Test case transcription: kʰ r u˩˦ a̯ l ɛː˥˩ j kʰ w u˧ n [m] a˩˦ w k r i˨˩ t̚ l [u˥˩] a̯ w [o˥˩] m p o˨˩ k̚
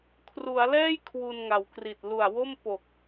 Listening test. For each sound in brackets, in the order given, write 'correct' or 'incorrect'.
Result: incorrect: ŋ, incorrect: u˨˩, correct

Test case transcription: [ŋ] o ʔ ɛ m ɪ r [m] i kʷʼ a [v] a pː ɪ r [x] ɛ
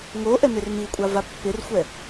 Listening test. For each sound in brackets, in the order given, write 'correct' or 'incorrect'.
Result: correct, correct, correct, incorrect: xʷ

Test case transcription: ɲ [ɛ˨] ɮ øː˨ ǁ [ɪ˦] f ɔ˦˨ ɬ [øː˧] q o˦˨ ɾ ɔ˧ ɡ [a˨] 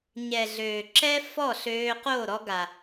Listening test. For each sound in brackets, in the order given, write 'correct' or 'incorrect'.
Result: correct, incorrect: ɛ˦, correct, correct

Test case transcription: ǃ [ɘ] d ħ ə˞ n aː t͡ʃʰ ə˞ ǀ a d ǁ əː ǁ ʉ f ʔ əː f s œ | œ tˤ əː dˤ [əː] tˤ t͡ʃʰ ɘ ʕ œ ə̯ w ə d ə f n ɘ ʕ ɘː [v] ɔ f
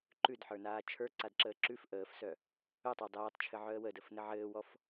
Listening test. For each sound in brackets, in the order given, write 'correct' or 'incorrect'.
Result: incorrect: ʉ, incorrect: ɛː, incorrect: w

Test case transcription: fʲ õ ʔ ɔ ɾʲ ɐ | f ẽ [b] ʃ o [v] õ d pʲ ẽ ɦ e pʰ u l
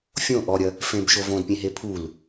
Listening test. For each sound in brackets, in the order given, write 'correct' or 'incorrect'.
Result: correct, correct

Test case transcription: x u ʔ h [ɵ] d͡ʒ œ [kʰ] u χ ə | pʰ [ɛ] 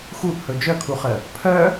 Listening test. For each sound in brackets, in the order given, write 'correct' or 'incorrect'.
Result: correct, correct, incorrect: œ

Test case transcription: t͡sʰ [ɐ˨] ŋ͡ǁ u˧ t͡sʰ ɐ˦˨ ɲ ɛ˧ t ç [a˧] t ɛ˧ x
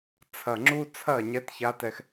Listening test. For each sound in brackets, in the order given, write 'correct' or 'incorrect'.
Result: correct, correct

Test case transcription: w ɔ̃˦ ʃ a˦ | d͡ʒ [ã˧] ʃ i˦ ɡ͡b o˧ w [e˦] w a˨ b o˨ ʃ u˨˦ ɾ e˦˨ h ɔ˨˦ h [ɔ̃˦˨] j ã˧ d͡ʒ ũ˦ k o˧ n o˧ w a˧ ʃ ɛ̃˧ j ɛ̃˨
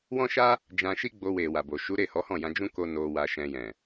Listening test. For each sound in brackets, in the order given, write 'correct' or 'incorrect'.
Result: correct, incorrect: e˨, correct

